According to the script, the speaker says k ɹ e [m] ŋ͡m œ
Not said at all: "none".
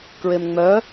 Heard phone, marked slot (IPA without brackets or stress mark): m